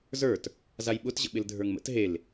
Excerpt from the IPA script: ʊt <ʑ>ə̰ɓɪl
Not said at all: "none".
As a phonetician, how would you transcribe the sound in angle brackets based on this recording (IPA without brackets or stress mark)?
ʑ